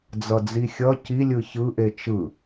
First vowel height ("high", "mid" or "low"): mid